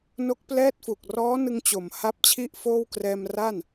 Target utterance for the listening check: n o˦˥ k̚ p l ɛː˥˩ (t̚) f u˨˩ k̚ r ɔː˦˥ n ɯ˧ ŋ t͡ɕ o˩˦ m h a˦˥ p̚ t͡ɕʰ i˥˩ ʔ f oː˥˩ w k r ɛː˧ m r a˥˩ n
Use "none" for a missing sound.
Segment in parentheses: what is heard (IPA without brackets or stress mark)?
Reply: t̚